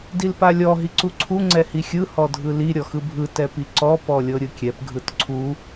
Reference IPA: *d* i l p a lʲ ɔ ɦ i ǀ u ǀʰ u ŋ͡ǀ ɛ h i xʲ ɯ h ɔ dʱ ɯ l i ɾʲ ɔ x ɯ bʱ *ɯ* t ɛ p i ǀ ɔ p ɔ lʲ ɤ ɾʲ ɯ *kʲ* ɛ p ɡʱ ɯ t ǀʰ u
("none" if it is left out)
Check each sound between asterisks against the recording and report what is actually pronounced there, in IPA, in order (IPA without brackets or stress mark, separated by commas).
d, ɯ, kʲ